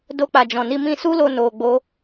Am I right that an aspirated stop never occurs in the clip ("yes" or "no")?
yes